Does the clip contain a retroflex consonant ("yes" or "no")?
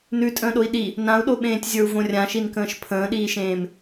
no